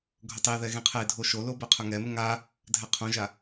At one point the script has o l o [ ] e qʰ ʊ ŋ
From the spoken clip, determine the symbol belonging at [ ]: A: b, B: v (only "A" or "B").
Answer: A